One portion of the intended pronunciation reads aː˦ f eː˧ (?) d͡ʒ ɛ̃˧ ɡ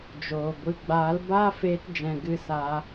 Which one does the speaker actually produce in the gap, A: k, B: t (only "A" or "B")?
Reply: B